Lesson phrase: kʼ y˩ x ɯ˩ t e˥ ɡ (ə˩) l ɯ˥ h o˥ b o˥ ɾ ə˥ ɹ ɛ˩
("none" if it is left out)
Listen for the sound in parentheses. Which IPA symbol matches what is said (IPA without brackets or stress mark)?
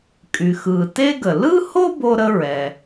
ə˩